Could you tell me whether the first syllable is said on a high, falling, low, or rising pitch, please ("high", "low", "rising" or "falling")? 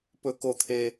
high